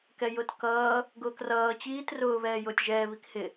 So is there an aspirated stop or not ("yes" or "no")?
no